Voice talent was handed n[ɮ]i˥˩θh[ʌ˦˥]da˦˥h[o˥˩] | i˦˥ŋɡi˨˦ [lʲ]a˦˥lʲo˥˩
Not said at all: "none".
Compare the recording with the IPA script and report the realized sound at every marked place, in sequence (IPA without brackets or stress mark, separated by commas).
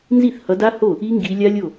z, ʌ˨˦, o˥˩, lʲ